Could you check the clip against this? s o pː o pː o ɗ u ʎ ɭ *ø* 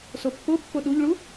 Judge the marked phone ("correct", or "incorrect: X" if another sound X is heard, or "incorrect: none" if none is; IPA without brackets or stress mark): incorrect: u